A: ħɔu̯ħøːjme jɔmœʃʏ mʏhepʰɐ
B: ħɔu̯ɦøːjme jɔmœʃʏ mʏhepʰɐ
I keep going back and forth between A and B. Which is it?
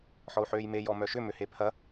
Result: A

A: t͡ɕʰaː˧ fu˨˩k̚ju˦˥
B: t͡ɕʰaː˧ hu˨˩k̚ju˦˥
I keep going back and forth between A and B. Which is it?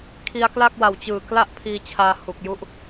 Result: B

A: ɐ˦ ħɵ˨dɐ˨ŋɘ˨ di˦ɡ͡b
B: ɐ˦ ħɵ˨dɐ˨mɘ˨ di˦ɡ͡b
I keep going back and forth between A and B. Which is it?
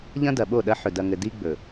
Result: A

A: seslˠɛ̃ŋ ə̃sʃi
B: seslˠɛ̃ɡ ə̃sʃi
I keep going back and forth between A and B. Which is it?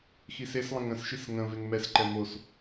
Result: A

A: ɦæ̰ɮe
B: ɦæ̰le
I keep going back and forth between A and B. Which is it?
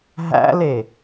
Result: B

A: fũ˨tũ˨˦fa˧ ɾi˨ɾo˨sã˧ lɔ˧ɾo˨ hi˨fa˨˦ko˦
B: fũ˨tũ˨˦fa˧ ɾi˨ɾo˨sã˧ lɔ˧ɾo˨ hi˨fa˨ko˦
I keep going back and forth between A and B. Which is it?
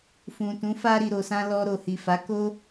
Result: A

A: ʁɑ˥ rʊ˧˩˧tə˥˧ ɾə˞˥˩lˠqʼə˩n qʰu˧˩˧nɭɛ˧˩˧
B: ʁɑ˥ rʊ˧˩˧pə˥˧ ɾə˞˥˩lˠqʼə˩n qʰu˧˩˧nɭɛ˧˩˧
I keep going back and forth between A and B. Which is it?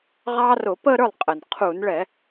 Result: B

